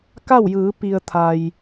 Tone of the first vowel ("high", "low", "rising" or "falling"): falling